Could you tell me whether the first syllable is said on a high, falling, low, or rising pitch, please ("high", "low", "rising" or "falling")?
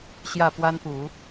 falling